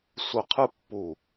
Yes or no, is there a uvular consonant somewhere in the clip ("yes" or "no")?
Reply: yes